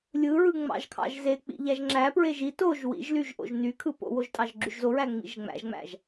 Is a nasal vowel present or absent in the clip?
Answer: absent